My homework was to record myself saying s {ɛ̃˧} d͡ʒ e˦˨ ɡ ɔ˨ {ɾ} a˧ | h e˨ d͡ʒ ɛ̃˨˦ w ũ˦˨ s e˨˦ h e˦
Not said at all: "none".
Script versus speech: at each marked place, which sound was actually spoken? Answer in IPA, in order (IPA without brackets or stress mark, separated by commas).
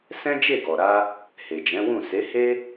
ɛ̃˦, ɾ